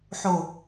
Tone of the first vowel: low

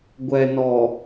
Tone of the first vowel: low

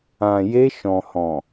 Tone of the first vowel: low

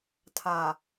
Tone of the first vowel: low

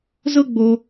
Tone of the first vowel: high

